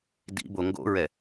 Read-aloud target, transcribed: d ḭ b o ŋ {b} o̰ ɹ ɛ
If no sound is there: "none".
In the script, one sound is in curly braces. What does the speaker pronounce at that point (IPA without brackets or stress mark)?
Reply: ɡ